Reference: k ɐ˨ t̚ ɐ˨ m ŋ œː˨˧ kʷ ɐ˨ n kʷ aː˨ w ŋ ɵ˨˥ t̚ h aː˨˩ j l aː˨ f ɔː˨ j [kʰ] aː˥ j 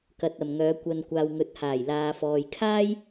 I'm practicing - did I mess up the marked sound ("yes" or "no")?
no